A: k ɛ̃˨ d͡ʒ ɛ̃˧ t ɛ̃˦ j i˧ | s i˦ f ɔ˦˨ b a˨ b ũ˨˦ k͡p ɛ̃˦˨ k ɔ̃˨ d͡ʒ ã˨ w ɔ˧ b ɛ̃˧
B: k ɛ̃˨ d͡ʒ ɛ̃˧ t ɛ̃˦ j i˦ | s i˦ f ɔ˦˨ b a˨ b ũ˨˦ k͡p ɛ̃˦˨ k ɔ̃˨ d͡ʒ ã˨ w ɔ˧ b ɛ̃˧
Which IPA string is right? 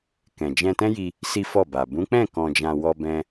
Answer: A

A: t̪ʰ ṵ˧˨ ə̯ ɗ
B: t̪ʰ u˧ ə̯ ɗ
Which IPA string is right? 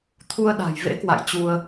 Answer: B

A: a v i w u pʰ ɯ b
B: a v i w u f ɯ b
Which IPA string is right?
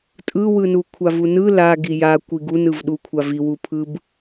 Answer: A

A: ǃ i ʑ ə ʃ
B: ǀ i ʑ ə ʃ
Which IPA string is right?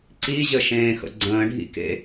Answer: B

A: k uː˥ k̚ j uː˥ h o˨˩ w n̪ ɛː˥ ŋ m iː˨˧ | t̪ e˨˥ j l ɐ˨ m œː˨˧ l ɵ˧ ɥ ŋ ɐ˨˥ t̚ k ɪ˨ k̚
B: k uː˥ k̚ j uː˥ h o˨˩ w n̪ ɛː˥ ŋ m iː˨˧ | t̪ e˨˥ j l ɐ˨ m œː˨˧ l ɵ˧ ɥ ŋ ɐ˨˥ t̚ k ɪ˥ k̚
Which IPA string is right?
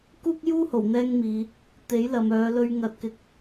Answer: A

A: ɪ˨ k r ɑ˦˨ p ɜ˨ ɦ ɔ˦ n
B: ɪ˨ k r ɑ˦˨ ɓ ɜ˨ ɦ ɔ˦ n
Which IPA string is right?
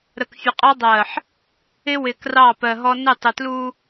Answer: A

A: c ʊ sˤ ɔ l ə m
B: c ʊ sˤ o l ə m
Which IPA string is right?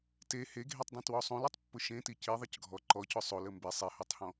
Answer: B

